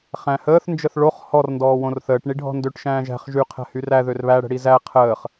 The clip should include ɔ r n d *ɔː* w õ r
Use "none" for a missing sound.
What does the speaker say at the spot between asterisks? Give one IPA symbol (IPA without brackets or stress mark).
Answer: ɔː